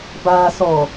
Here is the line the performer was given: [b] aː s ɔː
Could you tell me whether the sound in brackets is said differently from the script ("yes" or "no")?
no